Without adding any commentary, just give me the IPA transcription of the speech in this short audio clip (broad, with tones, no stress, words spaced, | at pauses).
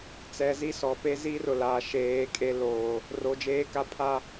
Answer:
t͡sɛ˨ zi˦sɔ˨pe˦ zi˦rʊ˨ laː˨ʃeː˨˦ kʼe˦ loː˨ | ro˨d͡ʒeː˦ka˦ pʰa˦